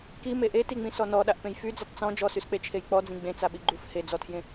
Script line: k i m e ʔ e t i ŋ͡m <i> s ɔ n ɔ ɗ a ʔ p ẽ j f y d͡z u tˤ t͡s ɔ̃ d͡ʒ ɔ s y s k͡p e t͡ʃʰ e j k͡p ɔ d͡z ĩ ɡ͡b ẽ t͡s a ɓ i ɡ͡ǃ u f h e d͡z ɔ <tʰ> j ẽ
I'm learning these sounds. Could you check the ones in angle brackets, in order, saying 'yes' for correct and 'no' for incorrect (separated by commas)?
no, yes